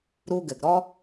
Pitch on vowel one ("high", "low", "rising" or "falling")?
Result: low